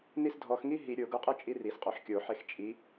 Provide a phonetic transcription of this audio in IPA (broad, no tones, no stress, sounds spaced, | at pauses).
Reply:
n i s dʱ ɔ x ŋ i ɦ i ɾʲ o ɡ u qʼ ɯ t͡ʃʼ i r i s qʼ o ħ kʲ o ħ e x t͡ʃʼ i